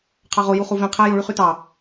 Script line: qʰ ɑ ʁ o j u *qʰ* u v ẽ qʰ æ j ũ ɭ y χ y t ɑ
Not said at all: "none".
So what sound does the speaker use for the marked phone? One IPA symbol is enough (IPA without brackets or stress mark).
χ